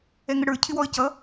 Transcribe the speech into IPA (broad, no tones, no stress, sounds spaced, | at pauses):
ɛ ŋ ə ɽ ə˞ cʰ ɪ w ɔ ə̯ c ʌ